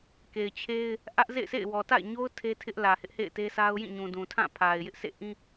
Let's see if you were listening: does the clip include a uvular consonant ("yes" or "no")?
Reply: no